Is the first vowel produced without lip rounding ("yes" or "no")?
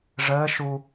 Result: yes